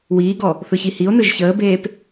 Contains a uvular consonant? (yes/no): no